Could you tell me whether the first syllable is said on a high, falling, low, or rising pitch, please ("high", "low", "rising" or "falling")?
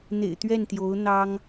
low